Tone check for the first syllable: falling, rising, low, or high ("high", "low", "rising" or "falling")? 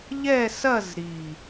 falling